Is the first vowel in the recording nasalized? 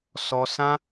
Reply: no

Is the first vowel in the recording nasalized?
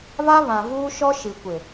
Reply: no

